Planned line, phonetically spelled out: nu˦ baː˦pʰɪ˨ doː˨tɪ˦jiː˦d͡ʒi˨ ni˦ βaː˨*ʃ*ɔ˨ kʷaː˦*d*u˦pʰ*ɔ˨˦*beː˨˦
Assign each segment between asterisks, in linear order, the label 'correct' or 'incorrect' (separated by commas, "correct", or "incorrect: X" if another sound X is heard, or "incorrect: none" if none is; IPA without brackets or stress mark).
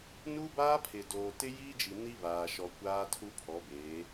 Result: correct, incorrect: tʰ, correct